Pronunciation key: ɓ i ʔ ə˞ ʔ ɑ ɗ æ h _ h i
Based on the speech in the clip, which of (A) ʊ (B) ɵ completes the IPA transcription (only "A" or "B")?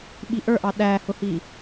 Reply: A